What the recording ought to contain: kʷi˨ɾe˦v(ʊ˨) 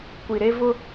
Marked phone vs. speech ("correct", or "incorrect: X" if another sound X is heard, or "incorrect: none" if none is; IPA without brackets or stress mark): incorrect: ʊ˦